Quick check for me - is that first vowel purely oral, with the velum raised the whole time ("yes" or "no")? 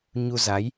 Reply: yes